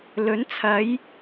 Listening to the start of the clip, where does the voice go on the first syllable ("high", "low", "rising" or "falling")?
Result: rising